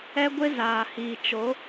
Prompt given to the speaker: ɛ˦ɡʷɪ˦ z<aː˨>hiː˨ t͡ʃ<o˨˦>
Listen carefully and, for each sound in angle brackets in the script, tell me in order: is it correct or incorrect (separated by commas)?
correct, correct